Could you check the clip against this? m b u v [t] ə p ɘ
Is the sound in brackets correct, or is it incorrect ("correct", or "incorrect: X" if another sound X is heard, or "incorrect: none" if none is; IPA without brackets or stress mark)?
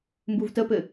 correct